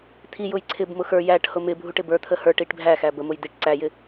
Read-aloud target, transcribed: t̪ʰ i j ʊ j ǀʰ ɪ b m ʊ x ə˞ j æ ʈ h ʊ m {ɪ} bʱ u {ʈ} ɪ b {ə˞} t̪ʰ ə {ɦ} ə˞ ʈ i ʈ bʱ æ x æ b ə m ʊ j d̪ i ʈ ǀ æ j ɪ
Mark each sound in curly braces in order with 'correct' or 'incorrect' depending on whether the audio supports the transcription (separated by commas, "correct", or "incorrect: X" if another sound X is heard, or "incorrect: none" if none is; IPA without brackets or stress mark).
correct, correct, correct, incorrect: h